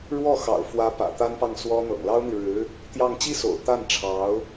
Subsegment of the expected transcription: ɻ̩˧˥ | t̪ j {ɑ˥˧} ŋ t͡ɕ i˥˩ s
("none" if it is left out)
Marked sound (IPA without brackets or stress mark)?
ɑ˥˧